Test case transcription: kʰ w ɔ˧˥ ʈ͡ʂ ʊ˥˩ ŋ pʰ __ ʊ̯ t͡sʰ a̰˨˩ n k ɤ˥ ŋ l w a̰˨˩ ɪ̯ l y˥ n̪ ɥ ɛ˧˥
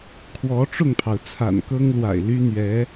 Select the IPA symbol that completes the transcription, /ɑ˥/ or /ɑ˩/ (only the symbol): ɑ˩